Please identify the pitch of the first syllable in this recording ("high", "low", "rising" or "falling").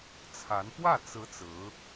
rising